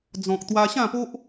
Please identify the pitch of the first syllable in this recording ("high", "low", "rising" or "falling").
low